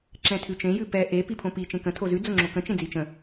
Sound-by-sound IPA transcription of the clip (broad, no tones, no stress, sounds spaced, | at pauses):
ǁ ɛ̃ tʰ ʉ t͡ʃ ẽ j ʉ p ɛ ʔ e p i pʰ õ p i t͡ʃ ẽ k ə̃ tʰ o z ʉ d͡z o ŋ͡ǁ o k ə̃ t͡ʃ ẽ d͡z i t͡ʃ ə̃